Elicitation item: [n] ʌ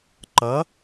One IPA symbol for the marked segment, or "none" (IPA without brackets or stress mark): ǃ